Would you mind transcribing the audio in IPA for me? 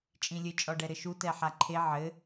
t͡ʃʼ ĩ lʲ ɘ t͡ʃʼ ɔ ɖ ɛ ɾ ɘ ʃ u t ɛ ħ a ǃʰ e ʕ ɘ

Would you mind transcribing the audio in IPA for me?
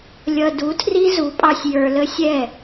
lʲ ʌ˧ d u˨˦ tʰ r i˦ z u˨˦ pʼ ɑ˧ sʲ j ə˞˧ l ə˦ sʲ ɛ˦˨

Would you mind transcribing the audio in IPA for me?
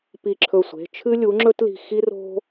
p i˧˩ ǁʰ ɵ˧˩ sʷ e̤˩˧˩ t͡ʃʰ ɨ˥ lʲ u˩˥ ŋ͡ǁ ɵ˥ t l i̤˧˩ x i˥ r o̤˥

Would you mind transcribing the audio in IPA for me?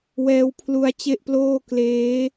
w ɛː˦˥ w pʰ l u˦˥ a̯ t͡ɕ e˥˩ ʔ p l oː˥˩ k l eː˦˥

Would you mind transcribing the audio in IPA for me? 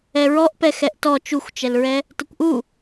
ɛ ɹ ɔ ʔ p ɛ x ɛ ʔ t ɔ t͡ʃ u xʷ t͡ʃ ɛ l ɹ ɛ | t ə kʷ ʔ u

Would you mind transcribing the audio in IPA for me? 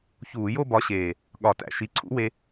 ç uː˧˩˧ j o˥˧ b ɒ˨˥ ɕ eː˨˩ | ɠ ɒ˧˩˧ t æ̰˨˩ ʃ i˨˥ ǀʰ ṵ˦˥ w e˧

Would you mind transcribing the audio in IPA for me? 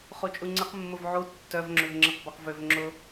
χ u t͡ʃʼ u ŋ͡ǀ ɪ q mː ʊ v ʕ u tː œ v ŋ͡ǁ ø v ŋ͡ǁ ɪ q b a q v ø v ŋ͡ǁ ʊ

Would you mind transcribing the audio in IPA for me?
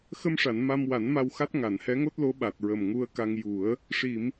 x ə˧ m ʂ a˨˩˨ n m a˧ m w a˨˩˦ n m a˧ w x a˦˥ t̚ ŋ a˨˩˨ n h ɛ˧˥ ŋ o˦˥ t̚ l o˧˥ ɓ a˨˩ t̚ ɹ ə˨˩ m ŋ u˧ ə̯ k a˧ ŋ j u˨˩˦ ə̯ | ʂ i˨˩˨ m

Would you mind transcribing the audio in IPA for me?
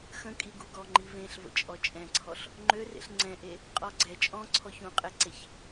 x ə̃ kʼ i ɡ u ɡ ɔ ŋ͡ǃ i v ẽ ɬ v ə̰ t͡ʃʼ ɔ t͡ʃʼ ɛ̃ ǀʰ ɔ ɬ | ŋ͡ǃ ø r ḛ ɬ ŋ͡ǀ ɛ̃ ʔ e | qʼ ɔ ɡ͡ǀ ɛ t͡ʃʼ ɔ̃ ǀʰ ɔ ç ũ qʼ ɛ ǀ e ç

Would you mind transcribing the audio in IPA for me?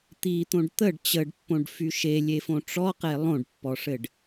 t̪ i t̪ õ ɖ t̪ ə ɖ t͡ɕ ə ɖ pː õ ɖ f y ʃ e lʲ e f õ ʈ͡ʂ ɔ q e lˠ õ ɖ pː ɔ ʂ ɘ ɖ

